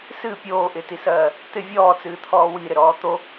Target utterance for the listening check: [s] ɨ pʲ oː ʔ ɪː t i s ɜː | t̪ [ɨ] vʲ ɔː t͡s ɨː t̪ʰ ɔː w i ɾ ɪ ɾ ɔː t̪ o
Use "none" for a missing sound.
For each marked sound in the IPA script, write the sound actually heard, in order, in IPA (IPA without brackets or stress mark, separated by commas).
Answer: s, ɪ